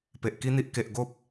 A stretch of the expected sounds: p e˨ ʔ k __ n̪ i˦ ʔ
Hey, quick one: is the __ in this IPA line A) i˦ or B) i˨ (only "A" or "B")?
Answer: A